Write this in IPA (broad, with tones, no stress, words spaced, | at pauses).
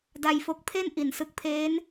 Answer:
da˧jfo˦˥k̚ pʰe˥˩n ʔi˩˦nsɯ˨˩k̚pʰeː˦˥n